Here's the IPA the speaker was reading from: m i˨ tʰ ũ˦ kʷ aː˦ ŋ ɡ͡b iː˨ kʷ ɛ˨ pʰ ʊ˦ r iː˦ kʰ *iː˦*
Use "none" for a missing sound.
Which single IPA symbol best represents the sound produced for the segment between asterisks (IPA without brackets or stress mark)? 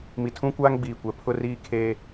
eː˦